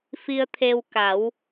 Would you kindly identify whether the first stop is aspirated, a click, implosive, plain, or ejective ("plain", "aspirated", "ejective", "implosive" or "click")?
aspirated